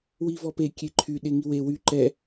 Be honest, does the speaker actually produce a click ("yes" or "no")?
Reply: yes